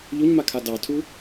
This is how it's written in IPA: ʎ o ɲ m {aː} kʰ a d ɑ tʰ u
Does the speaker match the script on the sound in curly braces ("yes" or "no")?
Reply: no